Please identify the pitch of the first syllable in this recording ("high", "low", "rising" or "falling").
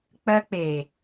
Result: high